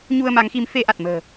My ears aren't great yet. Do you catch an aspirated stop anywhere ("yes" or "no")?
no